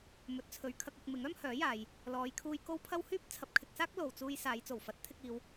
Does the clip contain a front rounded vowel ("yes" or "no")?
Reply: yes